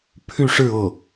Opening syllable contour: falling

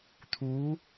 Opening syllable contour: rising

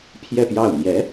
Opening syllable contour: falling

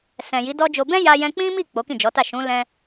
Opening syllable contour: low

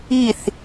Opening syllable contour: falling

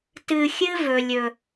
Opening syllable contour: low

